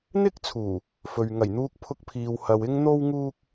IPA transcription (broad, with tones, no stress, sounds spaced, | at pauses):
n̪ ɪ˥ k̚ t͡sʰ uː˨˩ | f ɵ˨ ɥ ŋ ɐ˨˩ j n̪ uː˧ k̚ pʰ ʊ˧ k̚ pʰ iː˨ w h ɐ˨ w ɪ˥ ŋ n̪ o˥ w ŋ uː˥ k̚